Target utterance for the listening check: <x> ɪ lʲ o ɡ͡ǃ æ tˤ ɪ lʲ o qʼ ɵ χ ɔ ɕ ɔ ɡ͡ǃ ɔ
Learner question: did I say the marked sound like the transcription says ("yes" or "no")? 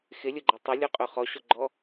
yes